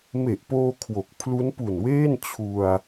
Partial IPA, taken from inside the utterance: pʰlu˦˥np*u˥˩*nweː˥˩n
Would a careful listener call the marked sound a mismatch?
yes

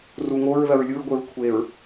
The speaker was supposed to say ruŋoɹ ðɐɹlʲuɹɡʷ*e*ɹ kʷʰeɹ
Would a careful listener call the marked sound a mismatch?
no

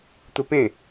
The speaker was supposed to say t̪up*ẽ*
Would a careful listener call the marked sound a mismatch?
no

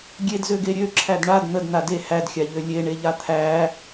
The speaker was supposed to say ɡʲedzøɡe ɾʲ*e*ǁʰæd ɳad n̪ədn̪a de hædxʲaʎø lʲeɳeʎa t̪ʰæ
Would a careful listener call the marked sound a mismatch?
yes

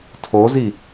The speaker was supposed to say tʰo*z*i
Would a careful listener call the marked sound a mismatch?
no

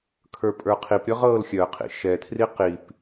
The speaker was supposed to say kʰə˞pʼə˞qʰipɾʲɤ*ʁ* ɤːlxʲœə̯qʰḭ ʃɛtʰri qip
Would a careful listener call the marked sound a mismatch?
no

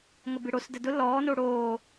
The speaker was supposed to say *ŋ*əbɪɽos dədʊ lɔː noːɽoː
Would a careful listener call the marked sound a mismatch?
no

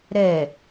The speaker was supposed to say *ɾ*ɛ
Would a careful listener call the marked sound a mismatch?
no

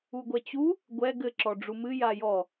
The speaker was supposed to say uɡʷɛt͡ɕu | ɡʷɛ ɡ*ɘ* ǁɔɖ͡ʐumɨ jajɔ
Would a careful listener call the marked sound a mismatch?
no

